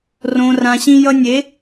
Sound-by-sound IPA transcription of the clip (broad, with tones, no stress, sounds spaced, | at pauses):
r õ˨ r ã˨ ɕ ĩ˧ j ʌ˧ nʲ e˨˦